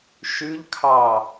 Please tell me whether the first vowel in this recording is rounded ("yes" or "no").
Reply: yes